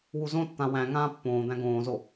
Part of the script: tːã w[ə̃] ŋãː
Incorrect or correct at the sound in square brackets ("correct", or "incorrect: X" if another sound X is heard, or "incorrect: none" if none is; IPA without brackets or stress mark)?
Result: incorrect: æ̃